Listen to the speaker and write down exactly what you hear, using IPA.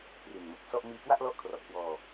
p r i˨˩ n m o˨˩ k̚ s ɔ˥˩ ʔ m iː˧ k w a˥˩ ʔ l ɔ˦˥ ʔ kʰ r ɔ˨˩ ʔ k w ɔː˧

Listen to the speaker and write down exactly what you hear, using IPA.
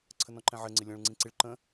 ǀʰ ə n ɔ̃ ǃ ɛ̃ ʕ ɘ ŋ͡ǀ ɪ lʲ ɔ̃ ɭ ŋ͡ǀ ĩ ǀ ɪ ɭ ǃ ə̃

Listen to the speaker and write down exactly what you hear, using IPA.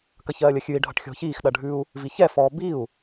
k ɐ ç ɜː lʲ ɐ xʲ ʉ i̯ ɖʱ ʌ ʈ xʲ ɔ̤ ç iː x ɗ ɐ ɖʱ ʉ u̯ | v i ç ɛ f ɔ b i u̯

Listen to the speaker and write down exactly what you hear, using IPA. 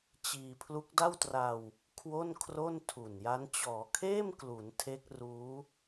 t͡ɕ iː˧ pʰ l u˦˥ k̚ d a˥˩ w t r a˧ w | kʰ w o˥˩ n kʰ r o˥˩ n tʰ u˨˩ n j a˦˥ n t͡ɕ ɔː˩˦ kʰ eː˥˩ m k l u˩˦ n tʰ e˦˥ k̚ r uː˦˥

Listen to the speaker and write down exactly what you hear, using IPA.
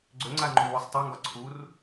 ɡ͡ǀ ʏ ŋ͡ǀ a ŋ͡ǃ u w ʊ sˤ tˤ a ŋ ɡ ɒ ǀʰ u r

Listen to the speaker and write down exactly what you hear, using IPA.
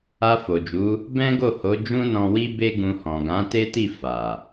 a˧ f o˨ d͡ʒ u˨˦ | b ɛ̃˦ ɡ o˦˨ h o˨˦ d͡ʒ ũ˦ n ɔ̃˧ w i˦ b e˦ ɡ ũ˧ h ɔ̃˨ ɡ ã˨˦ t e˦ t i˦˨ f a˨

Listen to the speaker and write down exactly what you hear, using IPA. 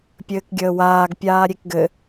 pʲ ɘː k ɡʲ əː w aː ɡ pʲ aː ɾʲ e k ɡ ɘ

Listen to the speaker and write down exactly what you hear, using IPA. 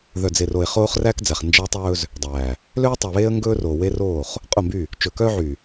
ð œ˨ d͡z e˨ r o˨ ɪ̯ χ oː˦ χ r æː˦ k d͡z æ˨ χ n d͡ʒ æ˦ w tˤ ɵː˦ z | dˤ æː˨ | l øː˦ tˤ ɵ˨ ə̯ β eː˦ ə̯ ŋ ɡ ɵː˦ r o˨ w e˦ r oː˦˨ χ | qʼ o˦˨ m b y˦˨ | t͡ʃ ɵ˨ k œː˦ ʕ y˨

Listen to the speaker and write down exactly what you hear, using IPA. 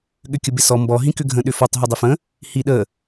ɠ ʏ kʲ ə b ɪ s ɔ m b ɔ ɦ ĩ k ʏ ɡʱ ə̃ ɗ ʏ f ɔ tˤ ɦ ʏ dˤ ɪ f ə̃ | h i ɗ ə

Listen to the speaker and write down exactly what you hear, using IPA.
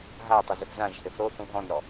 ɦ a tˤ a z ɪ θ z ã ʒ h ɪ θ o θ ũ ɦ ɔ̃ n ɾ ɔ

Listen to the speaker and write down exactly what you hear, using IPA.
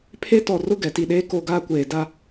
pʰ e˦ t ɔ˨ r ʊ˦ ɡ ɛ˨ t i˨ ɗ eː˦ k o˦˨ ɡ aː˦ kʷ eː˨ d a˦

